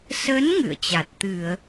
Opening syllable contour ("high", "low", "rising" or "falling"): rising